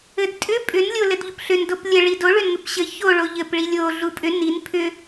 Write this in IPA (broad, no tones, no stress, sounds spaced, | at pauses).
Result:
ɘ d tʼ ʏ pʼ ʏ n lʲ o l ɘ d ʎ u p ɬ ʏ n d o p lʲ ə ɭ i d o ɭ ʏ n ŋ ʏ p ɕ ɘ ç o ɭ o ʎ ɘ p ɭ i lʲ o ɮ u pʼ ʏ n i n pʰ ʏ